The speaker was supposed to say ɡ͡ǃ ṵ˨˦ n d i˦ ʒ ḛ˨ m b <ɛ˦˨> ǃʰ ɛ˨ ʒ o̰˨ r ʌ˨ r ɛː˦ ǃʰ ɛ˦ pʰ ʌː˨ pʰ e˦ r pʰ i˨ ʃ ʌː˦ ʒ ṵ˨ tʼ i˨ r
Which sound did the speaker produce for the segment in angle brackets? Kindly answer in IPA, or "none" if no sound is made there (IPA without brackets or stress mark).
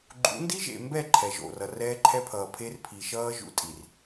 ɛ˦˨